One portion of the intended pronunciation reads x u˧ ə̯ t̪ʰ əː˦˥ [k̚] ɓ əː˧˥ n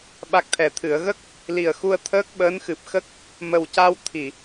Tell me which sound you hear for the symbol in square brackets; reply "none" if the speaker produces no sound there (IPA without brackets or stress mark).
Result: k̚